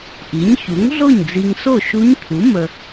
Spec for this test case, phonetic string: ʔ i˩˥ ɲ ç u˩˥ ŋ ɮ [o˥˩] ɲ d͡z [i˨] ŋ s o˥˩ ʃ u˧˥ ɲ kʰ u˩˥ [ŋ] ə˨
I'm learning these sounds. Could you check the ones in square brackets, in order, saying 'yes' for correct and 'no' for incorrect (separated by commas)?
yes, yes, no